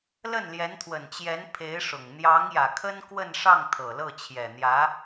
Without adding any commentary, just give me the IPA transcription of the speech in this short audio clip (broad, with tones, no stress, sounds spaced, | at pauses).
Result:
l ə˥˩ n l j ɛ˧˥ n t̪ʰ w ə˨˩ n t͡ɕ j ɛ˧˥ n pʰ e˧˥ ɪ̯ ʂ ʊ˨˩ ŋ n̪ j ɑ˧˥ ŋ j ä˨˩ kʰ ə˥ n k w ə˥˧ n ʂ ɑ˥˩ ŋ t̪ʰ ɤ˨˩ l ɤ˥˩ t͡ɕʰ j ɛ˨˩ n̪ j ä˧˥